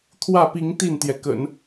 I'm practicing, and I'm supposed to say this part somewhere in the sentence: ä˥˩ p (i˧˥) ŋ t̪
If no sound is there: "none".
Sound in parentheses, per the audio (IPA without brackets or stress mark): i˧˥